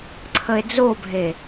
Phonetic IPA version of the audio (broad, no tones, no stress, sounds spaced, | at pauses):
ǀʰ ə e̯ d͡z o bʱ e